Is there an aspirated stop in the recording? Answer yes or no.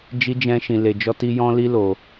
no